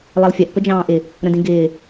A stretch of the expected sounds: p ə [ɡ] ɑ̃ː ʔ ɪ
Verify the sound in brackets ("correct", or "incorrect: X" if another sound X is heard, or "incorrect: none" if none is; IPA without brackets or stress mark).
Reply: incorrect: d͡ʒ